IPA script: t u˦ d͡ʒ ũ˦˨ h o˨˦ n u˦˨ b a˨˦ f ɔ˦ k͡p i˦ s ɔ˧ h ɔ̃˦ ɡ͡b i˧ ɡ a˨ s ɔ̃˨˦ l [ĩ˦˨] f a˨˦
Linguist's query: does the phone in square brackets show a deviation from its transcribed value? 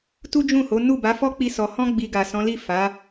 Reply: yes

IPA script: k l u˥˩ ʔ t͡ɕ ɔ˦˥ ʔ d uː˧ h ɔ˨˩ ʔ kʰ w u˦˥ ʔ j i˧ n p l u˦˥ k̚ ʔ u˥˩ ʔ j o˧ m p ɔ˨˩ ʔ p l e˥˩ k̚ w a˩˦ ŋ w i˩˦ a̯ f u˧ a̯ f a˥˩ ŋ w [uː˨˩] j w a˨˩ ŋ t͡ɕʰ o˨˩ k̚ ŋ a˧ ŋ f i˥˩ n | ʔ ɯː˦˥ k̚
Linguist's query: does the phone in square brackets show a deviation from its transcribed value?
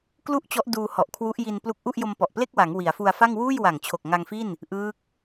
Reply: yes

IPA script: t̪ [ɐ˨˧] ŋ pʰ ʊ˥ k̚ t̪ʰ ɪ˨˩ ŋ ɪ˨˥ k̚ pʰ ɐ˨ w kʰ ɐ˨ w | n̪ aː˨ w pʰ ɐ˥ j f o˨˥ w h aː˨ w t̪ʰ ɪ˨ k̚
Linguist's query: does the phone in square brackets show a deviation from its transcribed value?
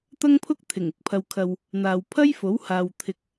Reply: yes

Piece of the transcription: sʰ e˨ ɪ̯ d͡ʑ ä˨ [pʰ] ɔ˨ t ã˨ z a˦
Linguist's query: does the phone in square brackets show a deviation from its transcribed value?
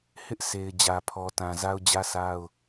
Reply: no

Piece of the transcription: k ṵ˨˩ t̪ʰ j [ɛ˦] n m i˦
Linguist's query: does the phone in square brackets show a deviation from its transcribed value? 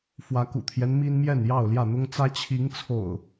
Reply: no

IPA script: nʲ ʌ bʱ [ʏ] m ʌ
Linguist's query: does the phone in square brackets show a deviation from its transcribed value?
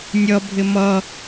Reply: yes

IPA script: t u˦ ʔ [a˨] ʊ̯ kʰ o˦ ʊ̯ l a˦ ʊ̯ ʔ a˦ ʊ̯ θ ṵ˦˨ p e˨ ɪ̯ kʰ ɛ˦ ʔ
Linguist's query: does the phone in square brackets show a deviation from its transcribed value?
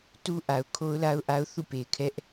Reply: no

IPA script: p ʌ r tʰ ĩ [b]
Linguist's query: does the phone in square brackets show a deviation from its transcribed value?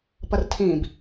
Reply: no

